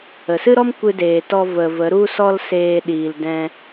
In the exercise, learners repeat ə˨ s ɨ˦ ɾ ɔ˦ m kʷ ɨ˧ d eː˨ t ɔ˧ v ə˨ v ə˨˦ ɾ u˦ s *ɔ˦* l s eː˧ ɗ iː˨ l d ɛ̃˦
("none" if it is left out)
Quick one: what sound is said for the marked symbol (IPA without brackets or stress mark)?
ɔ˦